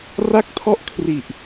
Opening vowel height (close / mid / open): open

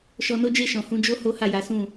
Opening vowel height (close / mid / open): mid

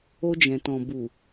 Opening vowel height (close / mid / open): mid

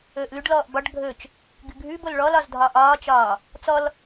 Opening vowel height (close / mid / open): mid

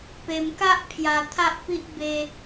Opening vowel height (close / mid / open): mid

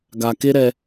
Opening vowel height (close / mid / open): open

